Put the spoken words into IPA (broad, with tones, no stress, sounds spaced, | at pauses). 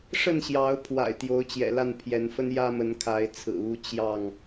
ʂ ə˥˨ n ɕ j ɑ˨˦ ʊ̯ pʰ w a̰˨˩ ɪ̯ t̪ j o˨˦ ʊ̯ t͡ɕ j ɛ̰˨˩ l a˥˨ n pʰ j ɛ˨˦ n f ə˦ n j ä˦ m ə˨˦ n kʰ a˨˦ ɪ̯ t͡sʰ ɹ̩˨˩ u˦ t͡ɕ j ɑ˥˨ ŋ